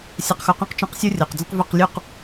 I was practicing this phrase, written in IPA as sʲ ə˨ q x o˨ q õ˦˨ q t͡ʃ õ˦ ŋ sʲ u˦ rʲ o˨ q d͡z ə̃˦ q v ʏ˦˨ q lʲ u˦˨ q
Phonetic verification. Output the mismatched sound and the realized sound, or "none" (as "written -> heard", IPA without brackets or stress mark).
ŋ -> q